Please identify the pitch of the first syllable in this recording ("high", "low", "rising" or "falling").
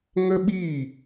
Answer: high